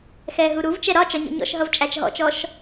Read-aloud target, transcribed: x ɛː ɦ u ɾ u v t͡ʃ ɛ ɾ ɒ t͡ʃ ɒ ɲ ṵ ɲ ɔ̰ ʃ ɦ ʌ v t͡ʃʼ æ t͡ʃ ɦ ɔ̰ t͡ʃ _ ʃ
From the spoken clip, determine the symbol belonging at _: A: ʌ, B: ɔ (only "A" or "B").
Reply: B